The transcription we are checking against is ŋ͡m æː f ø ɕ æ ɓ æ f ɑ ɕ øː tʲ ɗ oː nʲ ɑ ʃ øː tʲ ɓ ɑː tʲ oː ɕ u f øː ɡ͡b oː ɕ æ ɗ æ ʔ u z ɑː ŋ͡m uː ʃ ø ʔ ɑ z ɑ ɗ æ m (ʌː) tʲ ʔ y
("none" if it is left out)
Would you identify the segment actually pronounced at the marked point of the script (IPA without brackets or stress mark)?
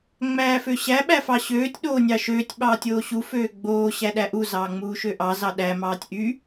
ɑː